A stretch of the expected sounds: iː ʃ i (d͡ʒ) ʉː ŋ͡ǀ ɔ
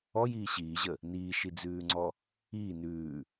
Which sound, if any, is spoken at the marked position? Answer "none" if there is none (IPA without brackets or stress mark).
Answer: d͡z